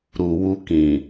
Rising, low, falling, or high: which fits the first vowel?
low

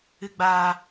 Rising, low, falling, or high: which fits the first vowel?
low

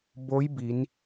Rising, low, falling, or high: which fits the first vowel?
rising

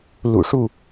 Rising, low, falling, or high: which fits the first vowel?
low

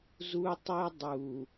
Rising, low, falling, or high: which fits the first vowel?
high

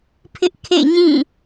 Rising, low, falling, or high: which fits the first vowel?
high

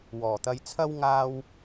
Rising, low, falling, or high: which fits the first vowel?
low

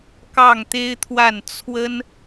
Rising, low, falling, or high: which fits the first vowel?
falling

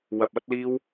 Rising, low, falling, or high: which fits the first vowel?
low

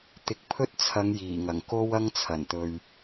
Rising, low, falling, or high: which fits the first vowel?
rising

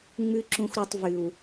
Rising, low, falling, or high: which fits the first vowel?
high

